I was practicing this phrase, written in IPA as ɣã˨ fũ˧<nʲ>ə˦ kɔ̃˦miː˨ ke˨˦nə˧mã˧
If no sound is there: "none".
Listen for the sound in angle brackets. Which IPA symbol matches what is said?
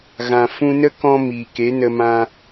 n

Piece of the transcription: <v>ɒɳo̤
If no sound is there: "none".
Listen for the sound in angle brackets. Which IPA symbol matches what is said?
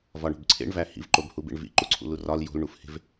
v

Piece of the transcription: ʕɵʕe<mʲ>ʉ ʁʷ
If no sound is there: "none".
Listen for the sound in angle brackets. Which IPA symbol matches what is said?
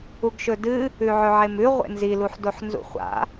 m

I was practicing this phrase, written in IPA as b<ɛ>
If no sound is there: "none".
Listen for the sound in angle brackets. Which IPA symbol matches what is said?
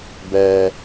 ɛ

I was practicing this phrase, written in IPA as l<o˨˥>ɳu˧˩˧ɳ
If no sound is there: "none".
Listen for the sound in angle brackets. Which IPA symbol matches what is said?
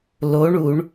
o˨˥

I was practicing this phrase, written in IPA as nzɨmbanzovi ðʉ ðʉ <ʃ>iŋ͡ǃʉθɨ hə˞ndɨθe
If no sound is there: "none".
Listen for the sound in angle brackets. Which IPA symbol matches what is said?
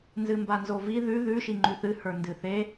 ʃ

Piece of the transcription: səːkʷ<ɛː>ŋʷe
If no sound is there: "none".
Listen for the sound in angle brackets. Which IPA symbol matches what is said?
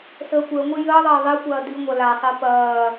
əː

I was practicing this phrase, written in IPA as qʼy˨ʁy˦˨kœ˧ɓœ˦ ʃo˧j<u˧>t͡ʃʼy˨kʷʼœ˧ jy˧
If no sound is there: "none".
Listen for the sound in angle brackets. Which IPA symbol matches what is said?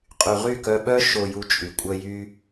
u˧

